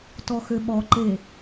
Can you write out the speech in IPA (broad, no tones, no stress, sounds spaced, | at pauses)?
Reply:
t ɔ x ø ɓ ɔ ǃ e